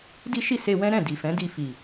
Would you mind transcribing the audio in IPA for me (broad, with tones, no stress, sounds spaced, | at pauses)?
d i˦ ʃ i˦˨ s e˧ w ɛ̃˦ ɾ ɛ̃˦˨ d i˨ f ɛ̃˨˦ d i˧ f i˨